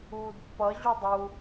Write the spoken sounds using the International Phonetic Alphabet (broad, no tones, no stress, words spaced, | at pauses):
uːdpːʌ ʑudˤu